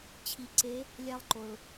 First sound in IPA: t͡ɕʰ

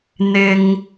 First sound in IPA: n̪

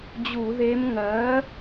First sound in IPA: d͡ʑ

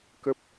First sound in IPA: k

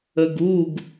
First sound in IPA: ə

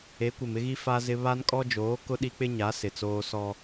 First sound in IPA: e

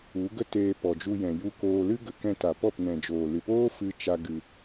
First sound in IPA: u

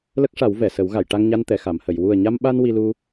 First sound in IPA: l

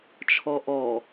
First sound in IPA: t͡ʃʰ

